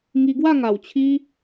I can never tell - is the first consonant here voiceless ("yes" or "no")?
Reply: no